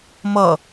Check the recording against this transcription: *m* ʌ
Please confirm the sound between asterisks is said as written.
yes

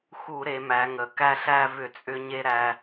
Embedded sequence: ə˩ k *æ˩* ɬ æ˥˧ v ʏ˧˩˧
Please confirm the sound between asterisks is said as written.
no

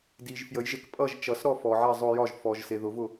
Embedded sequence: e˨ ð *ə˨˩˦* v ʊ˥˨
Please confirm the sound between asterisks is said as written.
no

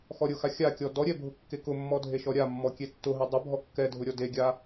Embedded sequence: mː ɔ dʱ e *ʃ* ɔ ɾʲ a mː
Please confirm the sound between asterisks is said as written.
yes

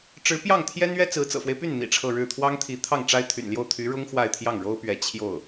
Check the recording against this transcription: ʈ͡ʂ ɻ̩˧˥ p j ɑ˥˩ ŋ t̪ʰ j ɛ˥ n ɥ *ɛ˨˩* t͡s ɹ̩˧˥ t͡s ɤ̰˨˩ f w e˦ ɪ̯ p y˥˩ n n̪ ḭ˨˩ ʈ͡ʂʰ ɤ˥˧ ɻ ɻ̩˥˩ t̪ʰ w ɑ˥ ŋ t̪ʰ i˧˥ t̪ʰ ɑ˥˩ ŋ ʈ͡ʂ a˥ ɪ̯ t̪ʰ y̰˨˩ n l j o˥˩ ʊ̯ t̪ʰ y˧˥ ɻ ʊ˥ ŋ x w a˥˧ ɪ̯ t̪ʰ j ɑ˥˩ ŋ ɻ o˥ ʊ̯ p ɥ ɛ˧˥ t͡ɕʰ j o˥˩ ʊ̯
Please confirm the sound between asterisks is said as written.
no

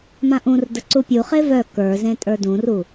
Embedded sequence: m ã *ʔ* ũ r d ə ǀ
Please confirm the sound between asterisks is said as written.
yes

